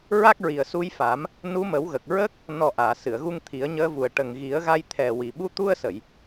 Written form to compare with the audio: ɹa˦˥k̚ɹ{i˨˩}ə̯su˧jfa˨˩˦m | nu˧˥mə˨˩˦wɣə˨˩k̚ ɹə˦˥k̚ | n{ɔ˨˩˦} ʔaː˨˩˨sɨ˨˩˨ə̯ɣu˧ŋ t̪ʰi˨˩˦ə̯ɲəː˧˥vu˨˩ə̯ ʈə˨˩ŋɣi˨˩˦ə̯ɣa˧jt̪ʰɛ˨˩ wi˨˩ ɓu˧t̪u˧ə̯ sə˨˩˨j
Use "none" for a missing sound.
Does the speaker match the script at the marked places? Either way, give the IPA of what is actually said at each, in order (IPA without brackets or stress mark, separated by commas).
i˨˩, ɔ˨˩